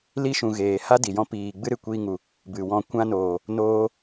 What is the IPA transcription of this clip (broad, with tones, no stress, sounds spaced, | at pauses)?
l i˧ ʃ ũ˨ ɣ eː˨ h a˦ d i˨ j ɔ̃˦ p iː˨ ɡ͡b ɨ˦ ɾ ɨ˨ kʷ iː˧ ŋ u˨ | b ɨ˨ w ɔ̃˧ kʷ ã˧ n oː˨ | n oː˧